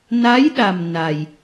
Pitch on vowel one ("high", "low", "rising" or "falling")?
rising